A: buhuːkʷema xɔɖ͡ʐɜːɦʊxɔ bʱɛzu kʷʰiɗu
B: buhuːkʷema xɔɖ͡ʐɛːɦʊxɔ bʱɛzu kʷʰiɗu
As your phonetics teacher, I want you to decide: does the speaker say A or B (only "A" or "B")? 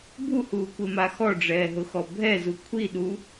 B